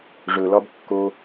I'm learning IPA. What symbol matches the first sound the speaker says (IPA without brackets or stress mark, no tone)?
ʐ